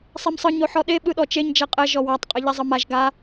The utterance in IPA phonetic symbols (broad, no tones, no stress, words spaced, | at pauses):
sˤemsˤɯ ɲoħɔɗe ɓɯɗɔt͡ʃeɲ d͡ʒɛqʼɛ ʒɔwatˤ qʼeʎɛzˤɯmaʒ ɡa